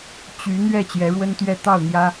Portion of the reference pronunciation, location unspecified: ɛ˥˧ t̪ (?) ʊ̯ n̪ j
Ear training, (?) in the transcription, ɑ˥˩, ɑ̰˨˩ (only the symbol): ɑ˥˩